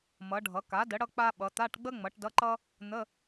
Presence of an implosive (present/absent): present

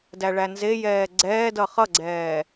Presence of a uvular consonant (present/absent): present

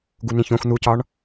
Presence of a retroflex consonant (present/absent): present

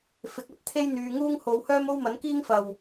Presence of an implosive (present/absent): absent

